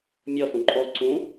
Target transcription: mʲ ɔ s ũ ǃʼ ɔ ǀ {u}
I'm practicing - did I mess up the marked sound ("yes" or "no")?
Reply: yes